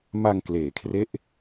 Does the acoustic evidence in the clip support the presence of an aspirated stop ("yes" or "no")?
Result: yes